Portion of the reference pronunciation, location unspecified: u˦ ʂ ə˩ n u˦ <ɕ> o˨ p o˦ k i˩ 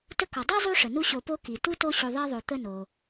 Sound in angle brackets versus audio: correct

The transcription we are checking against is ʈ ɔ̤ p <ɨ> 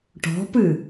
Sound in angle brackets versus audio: correct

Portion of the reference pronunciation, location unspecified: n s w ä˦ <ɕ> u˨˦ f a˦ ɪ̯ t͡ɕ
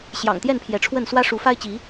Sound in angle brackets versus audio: incorrect: ʂ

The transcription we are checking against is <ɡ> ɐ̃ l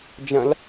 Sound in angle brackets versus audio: incorrect: d͡ʒ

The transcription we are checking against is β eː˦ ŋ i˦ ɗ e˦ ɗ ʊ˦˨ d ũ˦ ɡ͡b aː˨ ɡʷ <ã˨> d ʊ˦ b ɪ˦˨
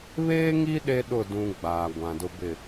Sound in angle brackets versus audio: correct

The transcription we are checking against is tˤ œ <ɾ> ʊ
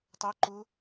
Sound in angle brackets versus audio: incorrect: ǃ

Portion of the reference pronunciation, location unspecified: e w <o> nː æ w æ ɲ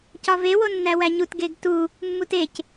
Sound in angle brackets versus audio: correct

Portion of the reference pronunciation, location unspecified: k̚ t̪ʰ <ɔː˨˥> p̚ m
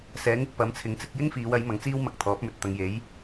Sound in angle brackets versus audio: correct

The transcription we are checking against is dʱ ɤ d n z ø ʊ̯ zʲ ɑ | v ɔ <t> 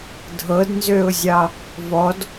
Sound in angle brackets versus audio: incorrect: d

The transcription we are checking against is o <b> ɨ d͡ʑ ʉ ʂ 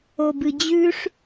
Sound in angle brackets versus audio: correct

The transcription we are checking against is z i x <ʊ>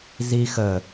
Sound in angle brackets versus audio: incorrect: ə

